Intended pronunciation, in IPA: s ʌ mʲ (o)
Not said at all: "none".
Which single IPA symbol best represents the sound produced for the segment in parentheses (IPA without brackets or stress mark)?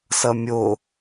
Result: o